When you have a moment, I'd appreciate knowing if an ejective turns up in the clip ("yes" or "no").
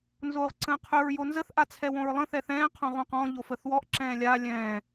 no